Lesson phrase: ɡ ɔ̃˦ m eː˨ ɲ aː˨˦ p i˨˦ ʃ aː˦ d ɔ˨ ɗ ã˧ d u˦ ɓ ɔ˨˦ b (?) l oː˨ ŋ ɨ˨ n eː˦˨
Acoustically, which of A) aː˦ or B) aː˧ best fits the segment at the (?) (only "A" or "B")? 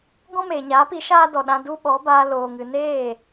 B